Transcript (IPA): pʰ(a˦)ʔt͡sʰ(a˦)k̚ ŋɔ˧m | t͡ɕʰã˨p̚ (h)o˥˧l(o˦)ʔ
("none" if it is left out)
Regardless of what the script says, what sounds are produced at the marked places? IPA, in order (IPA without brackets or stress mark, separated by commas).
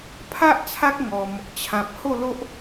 a˦, a˦, h, o˦